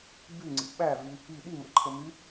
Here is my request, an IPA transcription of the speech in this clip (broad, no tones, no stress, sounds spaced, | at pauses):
b y ŋ͡ǀ ḭ ɓ æ v y | i ɗ i m ə̰ ǃʰ ə m y